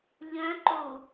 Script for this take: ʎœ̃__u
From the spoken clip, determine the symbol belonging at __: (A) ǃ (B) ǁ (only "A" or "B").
A